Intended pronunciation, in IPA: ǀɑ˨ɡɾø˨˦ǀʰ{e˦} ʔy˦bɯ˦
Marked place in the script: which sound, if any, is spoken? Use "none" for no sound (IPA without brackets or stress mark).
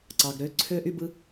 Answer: ø˦